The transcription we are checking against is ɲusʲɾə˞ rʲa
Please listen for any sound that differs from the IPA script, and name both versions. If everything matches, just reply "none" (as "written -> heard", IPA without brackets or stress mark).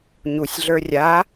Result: ɾ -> ɮ